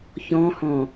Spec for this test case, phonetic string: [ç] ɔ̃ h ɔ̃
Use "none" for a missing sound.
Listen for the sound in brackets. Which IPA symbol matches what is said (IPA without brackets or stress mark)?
ç